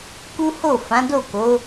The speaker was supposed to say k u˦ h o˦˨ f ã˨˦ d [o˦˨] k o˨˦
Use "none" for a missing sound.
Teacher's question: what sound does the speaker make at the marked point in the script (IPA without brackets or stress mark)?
o˦˨